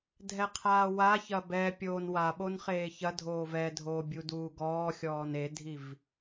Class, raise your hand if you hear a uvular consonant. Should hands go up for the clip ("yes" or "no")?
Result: yes